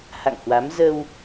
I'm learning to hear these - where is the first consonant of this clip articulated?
throat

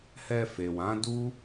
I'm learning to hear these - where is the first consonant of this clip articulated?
throat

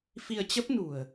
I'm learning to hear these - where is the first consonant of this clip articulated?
lips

